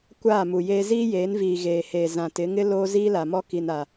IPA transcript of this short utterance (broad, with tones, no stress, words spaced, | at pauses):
kʷaː˦˨mu˨jeː˦ ziː˦jeː˨˦nviː˨ ɣeː˨heː˨ zã˨tɪ˨˦ŋɪ˦ loː˦ ziː˦la˨mɔ˦ ki˨na˨